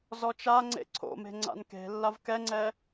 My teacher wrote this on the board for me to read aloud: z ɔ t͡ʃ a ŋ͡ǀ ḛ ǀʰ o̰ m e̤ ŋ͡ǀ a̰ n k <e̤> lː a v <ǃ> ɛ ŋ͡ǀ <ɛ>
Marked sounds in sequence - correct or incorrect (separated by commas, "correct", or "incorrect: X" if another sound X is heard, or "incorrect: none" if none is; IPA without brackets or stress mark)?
correct, incorrect: k, correct